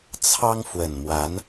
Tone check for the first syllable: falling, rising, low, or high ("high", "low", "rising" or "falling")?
high